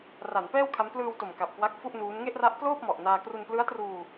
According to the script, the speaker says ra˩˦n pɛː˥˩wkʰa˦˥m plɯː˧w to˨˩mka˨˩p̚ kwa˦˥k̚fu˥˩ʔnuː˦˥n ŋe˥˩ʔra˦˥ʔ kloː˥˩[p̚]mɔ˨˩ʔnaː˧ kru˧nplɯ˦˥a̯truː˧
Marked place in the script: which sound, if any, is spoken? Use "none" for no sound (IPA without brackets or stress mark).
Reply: p̚